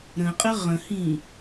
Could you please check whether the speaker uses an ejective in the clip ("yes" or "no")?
yes